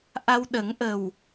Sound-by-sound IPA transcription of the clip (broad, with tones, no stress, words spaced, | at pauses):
ʔa˧wɗə˨˩˦ŋʔə˨˩w